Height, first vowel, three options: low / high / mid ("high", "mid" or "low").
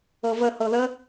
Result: mid